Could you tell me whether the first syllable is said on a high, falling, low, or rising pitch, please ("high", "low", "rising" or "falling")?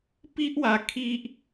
high